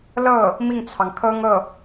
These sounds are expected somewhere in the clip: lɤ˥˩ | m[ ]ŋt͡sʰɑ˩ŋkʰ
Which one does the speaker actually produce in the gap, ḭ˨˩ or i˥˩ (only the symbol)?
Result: i˥˩